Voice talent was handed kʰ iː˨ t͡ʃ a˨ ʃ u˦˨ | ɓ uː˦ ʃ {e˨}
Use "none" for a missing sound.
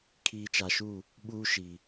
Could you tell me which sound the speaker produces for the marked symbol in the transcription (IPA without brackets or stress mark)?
i˨